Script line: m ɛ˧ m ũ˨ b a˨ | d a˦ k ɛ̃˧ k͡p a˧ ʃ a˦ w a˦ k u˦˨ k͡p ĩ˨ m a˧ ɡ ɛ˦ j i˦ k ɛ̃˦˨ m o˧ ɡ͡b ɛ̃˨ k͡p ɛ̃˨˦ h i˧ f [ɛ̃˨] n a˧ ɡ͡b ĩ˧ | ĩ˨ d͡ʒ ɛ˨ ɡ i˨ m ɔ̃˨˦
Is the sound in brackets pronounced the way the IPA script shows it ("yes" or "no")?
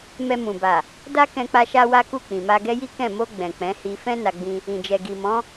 no